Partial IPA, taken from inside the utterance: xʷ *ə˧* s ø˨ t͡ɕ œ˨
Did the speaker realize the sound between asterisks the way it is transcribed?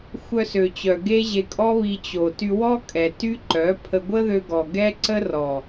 no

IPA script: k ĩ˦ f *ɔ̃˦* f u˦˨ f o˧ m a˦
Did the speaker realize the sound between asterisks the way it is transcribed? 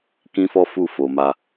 no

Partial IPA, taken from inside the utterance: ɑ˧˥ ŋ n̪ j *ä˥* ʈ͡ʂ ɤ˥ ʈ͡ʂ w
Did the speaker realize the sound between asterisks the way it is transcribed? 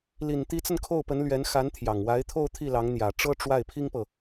no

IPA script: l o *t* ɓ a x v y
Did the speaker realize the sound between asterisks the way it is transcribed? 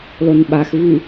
no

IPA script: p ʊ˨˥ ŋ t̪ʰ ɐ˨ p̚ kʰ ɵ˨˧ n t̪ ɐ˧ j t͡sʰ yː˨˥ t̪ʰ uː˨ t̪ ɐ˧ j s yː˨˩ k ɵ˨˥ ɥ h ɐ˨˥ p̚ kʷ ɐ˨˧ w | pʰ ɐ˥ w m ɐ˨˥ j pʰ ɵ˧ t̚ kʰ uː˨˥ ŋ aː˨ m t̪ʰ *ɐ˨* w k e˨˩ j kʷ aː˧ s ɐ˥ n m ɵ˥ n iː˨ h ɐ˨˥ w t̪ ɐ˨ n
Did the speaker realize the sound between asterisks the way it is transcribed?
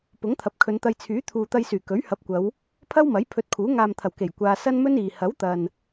no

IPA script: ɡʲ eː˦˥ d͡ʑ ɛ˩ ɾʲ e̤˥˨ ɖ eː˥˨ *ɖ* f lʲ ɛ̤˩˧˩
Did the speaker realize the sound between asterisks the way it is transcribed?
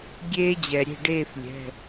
no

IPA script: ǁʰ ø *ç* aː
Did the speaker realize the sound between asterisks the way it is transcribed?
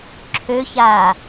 yes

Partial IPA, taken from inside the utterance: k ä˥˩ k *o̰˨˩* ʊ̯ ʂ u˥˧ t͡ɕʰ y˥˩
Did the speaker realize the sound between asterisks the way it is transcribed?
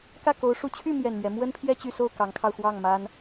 no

